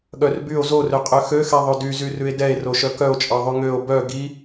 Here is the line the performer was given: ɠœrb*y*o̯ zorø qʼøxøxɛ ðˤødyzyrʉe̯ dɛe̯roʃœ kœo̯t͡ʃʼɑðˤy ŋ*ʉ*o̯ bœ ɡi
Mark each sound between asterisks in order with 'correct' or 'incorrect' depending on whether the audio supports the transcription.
correct, incorrect: ø

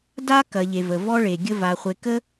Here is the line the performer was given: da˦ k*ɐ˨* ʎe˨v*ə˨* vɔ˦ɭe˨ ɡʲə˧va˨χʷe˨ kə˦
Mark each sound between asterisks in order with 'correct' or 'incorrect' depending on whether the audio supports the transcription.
correct, correct

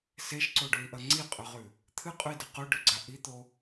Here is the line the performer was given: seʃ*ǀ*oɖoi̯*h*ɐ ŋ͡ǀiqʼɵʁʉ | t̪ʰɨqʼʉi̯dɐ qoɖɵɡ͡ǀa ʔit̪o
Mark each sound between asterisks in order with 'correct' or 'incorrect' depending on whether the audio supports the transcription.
correct, incorrect: ʔ

